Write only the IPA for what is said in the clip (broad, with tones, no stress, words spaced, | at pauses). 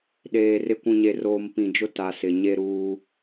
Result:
ɗeː˨rɪ˦ kʷũ˨ɲe˨roː˨m pĩ˨d͡ʒʊ˦ ta˨sɪ˨ ɲe˦ɾuː˦